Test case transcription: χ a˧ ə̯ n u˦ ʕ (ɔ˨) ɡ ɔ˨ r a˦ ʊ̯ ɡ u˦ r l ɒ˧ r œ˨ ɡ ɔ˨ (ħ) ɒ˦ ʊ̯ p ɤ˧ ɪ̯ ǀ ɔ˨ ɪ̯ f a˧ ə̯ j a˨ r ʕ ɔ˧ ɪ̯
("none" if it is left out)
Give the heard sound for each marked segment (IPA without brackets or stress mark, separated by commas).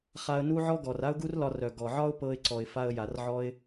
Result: ɔ˦, ʕ